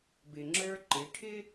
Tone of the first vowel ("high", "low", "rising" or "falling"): low